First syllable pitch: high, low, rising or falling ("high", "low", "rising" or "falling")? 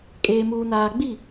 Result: low